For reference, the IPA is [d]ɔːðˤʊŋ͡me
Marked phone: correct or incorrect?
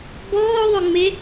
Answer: incorrect